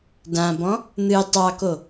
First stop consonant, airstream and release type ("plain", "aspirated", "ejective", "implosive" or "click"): plain